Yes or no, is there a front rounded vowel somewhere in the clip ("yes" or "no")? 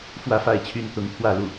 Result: yes